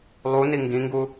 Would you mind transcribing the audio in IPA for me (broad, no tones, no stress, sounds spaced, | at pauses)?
lˠ u n i ŋ ɡ ĩ ŋ ɡ u